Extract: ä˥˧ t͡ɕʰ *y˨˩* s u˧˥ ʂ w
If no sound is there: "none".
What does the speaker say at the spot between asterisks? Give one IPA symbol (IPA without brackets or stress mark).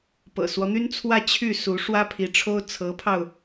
y˥˩